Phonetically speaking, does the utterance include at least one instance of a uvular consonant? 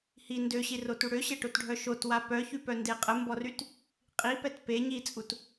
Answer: yes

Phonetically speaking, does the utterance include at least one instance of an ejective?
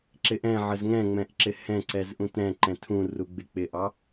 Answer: no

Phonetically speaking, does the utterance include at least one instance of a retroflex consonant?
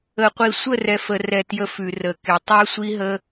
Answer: no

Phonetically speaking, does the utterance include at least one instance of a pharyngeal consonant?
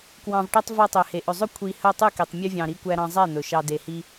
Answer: no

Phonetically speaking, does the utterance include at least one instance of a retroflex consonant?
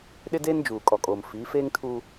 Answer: no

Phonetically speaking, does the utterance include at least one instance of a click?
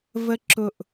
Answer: yes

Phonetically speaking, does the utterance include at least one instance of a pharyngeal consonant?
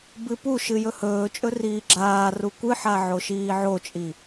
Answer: yes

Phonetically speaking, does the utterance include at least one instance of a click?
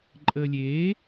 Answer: yes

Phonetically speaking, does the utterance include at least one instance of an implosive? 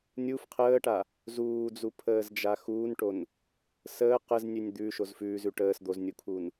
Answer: no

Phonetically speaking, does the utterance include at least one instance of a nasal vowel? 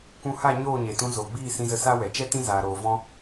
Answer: yes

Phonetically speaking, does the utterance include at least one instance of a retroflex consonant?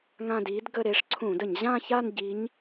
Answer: yes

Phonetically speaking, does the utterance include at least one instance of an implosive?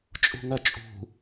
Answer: no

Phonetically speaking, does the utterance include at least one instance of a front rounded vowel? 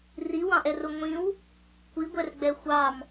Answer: no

